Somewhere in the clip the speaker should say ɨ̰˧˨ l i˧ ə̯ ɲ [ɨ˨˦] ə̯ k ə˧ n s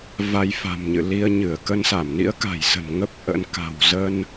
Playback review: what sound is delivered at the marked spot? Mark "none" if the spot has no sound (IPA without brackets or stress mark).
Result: ɨ˧˩